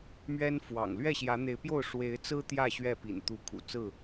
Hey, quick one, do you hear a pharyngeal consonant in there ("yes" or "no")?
no